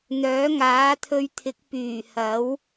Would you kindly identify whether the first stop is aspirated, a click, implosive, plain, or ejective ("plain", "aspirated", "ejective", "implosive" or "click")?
aspirated